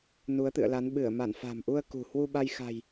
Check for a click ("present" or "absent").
absent